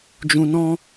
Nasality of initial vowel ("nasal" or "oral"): nasal